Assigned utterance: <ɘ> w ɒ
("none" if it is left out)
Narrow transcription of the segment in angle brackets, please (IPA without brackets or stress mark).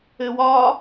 ɘ